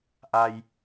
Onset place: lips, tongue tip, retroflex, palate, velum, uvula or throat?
throat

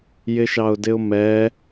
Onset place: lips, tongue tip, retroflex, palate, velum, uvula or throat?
palate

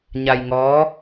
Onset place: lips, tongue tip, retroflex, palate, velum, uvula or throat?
palate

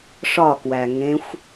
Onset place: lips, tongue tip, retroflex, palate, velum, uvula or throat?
retroflex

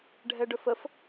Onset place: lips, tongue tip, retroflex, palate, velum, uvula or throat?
retroflex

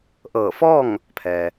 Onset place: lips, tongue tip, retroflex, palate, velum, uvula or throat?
throat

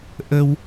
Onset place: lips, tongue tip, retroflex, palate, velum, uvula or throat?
throat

